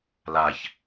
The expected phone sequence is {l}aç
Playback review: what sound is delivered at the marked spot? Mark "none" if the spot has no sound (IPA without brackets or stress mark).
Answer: l